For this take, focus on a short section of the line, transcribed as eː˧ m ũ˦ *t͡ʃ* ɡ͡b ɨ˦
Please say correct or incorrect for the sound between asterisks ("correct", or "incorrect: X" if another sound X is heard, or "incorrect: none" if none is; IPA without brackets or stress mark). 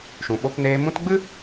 incorrect: t